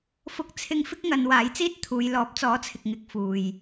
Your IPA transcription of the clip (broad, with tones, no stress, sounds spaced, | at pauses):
f ʊ˧ k̚ t͡sʰ ɪ˥ ŋ f ɪ˥ k̚ ŋ ɐ˨˧ n w aː˨˥ j t͡s iː˥ t̚ t̪ʰ uː˨˧ j l ɔː˨˥ p̚ t͡s ɔː˨˥ t͡sʰ ɪ˨ k̚ ŋ ɪ˧ k̚ f uː˨ j